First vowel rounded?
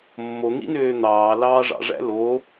yes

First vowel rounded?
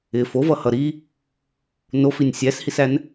no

